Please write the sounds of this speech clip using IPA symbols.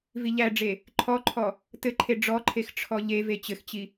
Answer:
viʎæɖ͡ʐe | ǃʰɔǃʰɔ | tɘǃʰe ɖ͡ʐɔǃʰex ʈ͡ʂʰɔʎeve t͡ɕɘxt͡ɕi

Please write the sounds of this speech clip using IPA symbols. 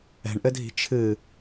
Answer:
ɛ̤ɳʔɘdʱi̤ t͡ʃʰɨ

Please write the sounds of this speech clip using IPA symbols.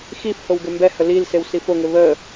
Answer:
xifhow ɡɘmbɛhə lilsew sifoŋɘ βə

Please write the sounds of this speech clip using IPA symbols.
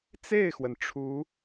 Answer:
t͡se˥˩ɪ̯xwə˩n ʈ͡ʂʰu˧˥

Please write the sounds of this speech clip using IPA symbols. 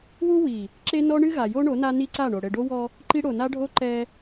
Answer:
wu˦ wi˨ | ǁe˦nɔ˦ɳɨ˦ɣa˨ jo˦ɳo˨˦ na˦ni˦ǀa˦˨ɳo˨ ɽɘ˨ɖo˦wɔ˦ | ǃi˦ ɽo˨na˦ɖʱo˦ ǃɛ˦

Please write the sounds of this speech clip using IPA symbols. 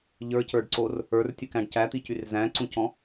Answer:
ʎə˞cə˞ɖǀor | ə˞rtʲɨkæ̃ɖ cæt̪icyr zæ̃ǀũcɔ̃

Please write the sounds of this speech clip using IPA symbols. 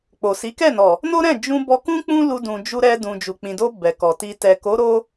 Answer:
k͡po˨si˨˦kɛ˦˨nɔ˨ | no˦ɾɛ̃˦˨ d͡ʒũ˧bɔ˧kũ˦ k͡pũ˦lu˧dũ˨ d͡ʒu˧ɾɛ˧ dũ˨d͡ʒu˨k͡pĩ˨do˧ bɛ˨kɔ˨ ti˨tɛ˨ko˨˦ɾo˧

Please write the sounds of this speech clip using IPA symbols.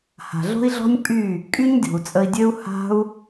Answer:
ha̤˨ɮo̤˦i̯ɮɔ̤˦nʲ pʼy˦˨ | kʼy˦ɲdʲo̤˨u̯t͡sʼə˧i̯dʲø˦u̯ ha̤˦u̯

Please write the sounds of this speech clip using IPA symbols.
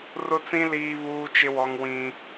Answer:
rʊ˦t͡sĩ˦ liː˦βuː˦t͡ʃɪ˦wɔ˦ŋ wĩ˦

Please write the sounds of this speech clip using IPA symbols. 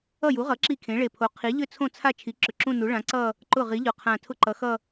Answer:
ʌ˥˩ju˩˥ʁʌ˩˥ ǁi˥˩kʰẽ˩˥ ɭe˨˩pʰo˩˥qʰi˩˥ʎʏ˥˧ t͡sʰõ˥˩t͡sʰa˥˩ t͡ʃʰi˩˥ǁʏ˨˩ǁũ˥˧nu˩˥ ɭã˩˥ǀʌ˥˧ | ǃʊ˥˩ʁi˩˥ʎʊ˨˩ qʰã˨˩ tʰʊ˥˧ǃʌ˩˥xʌ˥˧

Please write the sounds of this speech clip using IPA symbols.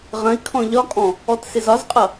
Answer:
ʁə̃i̯kʰɔ̃ ʎɒkʼɔ̃ | ɔtsɪzɒzqʼʌ

